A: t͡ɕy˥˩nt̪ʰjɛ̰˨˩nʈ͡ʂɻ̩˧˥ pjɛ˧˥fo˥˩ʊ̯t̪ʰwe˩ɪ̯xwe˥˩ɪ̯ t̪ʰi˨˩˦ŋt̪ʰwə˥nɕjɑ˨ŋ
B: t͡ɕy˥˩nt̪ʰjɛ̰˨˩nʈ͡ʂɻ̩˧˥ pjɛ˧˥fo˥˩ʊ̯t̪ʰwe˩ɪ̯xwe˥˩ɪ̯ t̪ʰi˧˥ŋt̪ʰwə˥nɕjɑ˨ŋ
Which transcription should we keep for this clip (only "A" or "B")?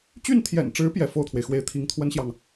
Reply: B